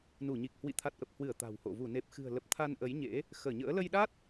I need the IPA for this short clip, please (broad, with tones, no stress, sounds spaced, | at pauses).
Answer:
n u˧˩ ɲ i˨˩ k̚ h w ḭ˧˨ t̪ʰ a˨˩ t̚ ʔ ə˨˩ p̚ h w ɨ˧˩ ə̯ t̪ a̤˨˩ w h o̰˧˨ v u˧˩ n e˨˩ p̚ x ɨ̤˨˩ ə̯ l ə˨˩ p̚ t̪ʰ a˧ n ʔ ə˨˦ j ɲ ḛ˧˥ | x əː˧˩ ɲ ə̰ː˧˥ l ə˧ j ɗ a˦˥ t̚